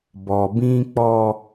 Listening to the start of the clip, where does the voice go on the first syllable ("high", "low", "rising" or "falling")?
low